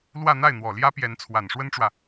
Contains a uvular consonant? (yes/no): no